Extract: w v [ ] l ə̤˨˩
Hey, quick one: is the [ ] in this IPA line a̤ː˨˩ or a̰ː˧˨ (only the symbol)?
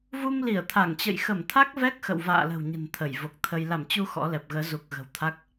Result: a̰ː˧˨